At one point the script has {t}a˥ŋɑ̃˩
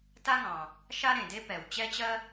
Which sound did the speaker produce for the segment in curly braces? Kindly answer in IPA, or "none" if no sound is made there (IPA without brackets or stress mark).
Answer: t